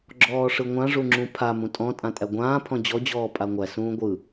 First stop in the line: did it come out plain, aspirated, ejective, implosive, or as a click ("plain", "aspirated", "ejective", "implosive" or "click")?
click